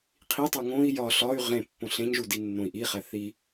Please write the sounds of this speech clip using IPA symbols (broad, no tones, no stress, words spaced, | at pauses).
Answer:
qʰitˤu ŋõi̯ jɒ ɬɒy̯ ʁẽpːõ ɬẽɲʒu dinːõi̯ʔiχæ θi